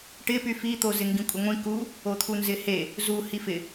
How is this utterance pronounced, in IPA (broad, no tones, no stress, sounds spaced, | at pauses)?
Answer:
ʈ ɪ p y f i t̪ o z ɪ ŋ ɡ ĩ kʷʼ ə ŋʷ ĩ k u | o t̪ʰ u n z ɪ h e | z u h i f ɪ